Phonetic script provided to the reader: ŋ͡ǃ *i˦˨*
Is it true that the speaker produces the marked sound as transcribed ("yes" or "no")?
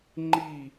yes